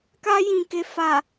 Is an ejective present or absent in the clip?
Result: absent